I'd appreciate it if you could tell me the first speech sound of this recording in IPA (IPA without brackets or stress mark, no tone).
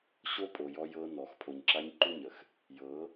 ɕ